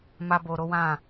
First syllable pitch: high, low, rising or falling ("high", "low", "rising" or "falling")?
high